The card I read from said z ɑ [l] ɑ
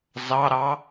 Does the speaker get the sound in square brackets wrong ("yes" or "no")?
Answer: yes